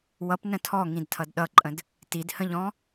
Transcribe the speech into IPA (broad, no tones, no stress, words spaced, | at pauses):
wʌpnə̃ tʰɔŋĩdtʰʌd ɗʌǃʼə̃d | tidhə̃ʎɔ̃